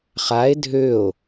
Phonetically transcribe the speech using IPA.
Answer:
χae̯ dʱøo̯

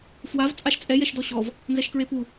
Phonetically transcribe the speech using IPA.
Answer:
fwav t͡sʼaʃt͡sʼɛ jɛʃdɔɕɔv | nzɛʃkɹepu

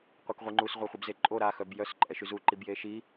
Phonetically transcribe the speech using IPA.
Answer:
qʷekʁʷiŋ͡ǃus ʁʷaχʷibzeǃʼo ɾa xœbjœs ǃʼɛʃyzu ǃibjeʃi

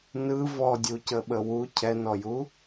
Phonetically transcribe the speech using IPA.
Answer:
nɯ vɔdʲucəɓə wu cʰɛnɔju

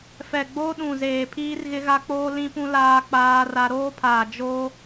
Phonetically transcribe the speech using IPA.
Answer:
fɛ˨ɡ͡bo˦ ɗũ˨zeː˨ pʰiː˦rɣɪ˦ɣa˦k͡poː˦ lĩ˦pũ˦ laː˦k͡paː˦ra˦ ɾoː˦pʰaː˨ d͡ʒo˦

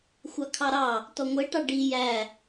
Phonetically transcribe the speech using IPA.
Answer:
xʷɑkʰɑɾɑ | tɔŋʷɛ ʈɑɖi jæ

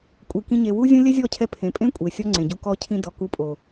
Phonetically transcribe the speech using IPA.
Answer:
kʷʼi˨kĩ˧ ɲe˨wu˦zʲũ˦ lʲɛ˦zʲɔ˦˨cʰɛ˧ pʰẽ˨pʼẽ˦ kʷʼe˨ sʲɔ˦ŋ͡ǀẽ˨ɟu˧ kɔ˧cʰĩ˧ dɔ˨ ku˧pʼo˨

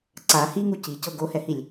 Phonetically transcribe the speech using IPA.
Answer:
ǀa hiŋu cicɤ ɡohɛhilʲ

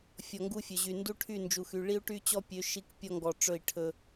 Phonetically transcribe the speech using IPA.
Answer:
fʲɔ˨ŋɡu˦fʲɵ˨ʑy˨ ndu˦ʈʰy˦˨nd͡ʒu˨xy˨ ɭi˦u̯ʈy˦t͡ɕɔ˦pʲø˨˦ ʃi˦kpʲɔ˦ ŋɡɔ˨ ʈ͡ʂɵ˦˨i̯ ʈʰɵ˦

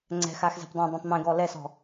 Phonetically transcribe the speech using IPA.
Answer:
ŋ͡ǀɛ̤xaxzɛ̤p dˤɛ̃dˤœ̃tˤ mẽɡɔ lɛsɔ̤

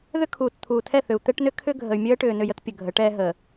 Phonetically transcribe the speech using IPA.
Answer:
ðʏ˦kʰuː˨tt̪ʰuː˨tʰɛ˦˨ θʏ˨u̯t̪ɛ˦ʈnʏ˦ kʰʏ˦ ɡʱə˨y̯mʲəː˦ʈʏː˨ nʏ˦˨jə˦t pʲə˨ɡʱə˨˦ʈɛː˦ ɦə˨

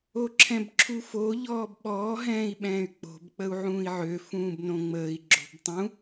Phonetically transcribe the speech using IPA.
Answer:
oǁʰɛ̃bǁʰufo ʎɔːbɓɔː ɦɛ̃ːi̯ɓɛ̃ːy̯k͡po̤b k͡pəu̯ʕũːi̯ʕø fũːbnõŋ͡məːi̯ ɡ͡ǁo̤btˤũ

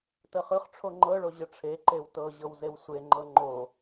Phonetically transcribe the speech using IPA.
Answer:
təχɯχʈ͡ʂʰo ŋ͡ǃɤɭo ʑəʈ͡ʂʰeǃew tɤʑɤw zewsʷeŋ͡ǃɤ ŋ͡ǃo

